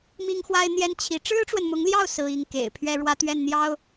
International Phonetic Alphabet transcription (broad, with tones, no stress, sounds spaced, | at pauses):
m i˥ ŋ x w a˥ ɪ̯ n̪ j ɛ˥ n t͡ɕʰ i˧˥ ʈ͡ʂ ɻ̩˥ ʈ͡ʂ w ə˨ n m ʊ˧˥ ŋ l j ɑ˥˩ ʊ̯ s ɹ̩˥ i˥ ŋ k ḛ˨˩ ɪ̯ pʰ ɥ ɛ˥ ɻ w ä˥ t̪ ɥ ɛ˥˩ n n̪ j ɑ˥ ʊ̯